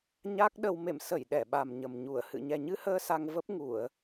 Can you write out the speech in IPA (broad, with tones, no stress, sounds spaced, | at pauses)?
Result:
ɲ a˦˥ k̚ ɗ ə˧ w m ḛ˧˨ m s ə˧˩ j ɗ ɛ˧˩ ɓ a˨˩ m ɲ ə˨˩ m ɲ u˧˩ ə̯ h ɨ̰˧˨ ɲ ɛ˨˩ ɲ ɨ˧ h əː˧ s a˧ ŋ v ə˦˥ p̚ ŋ u˧˩˨ ə̯